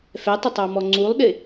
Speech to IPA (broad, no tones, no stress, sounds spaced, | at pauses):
f ɛ tˤ ɪ tˤ ɑ m ɔ ŋ͡ǀ u lˠ ɗ ɪ